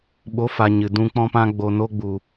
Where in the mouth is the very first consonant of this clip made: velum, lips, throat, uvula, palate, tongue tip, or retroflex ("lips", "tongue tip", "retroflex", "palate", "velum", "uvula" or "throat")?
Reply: lips